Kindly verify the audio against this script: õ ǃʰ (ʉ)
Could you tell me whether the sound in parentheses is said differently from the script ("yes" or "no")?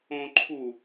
yes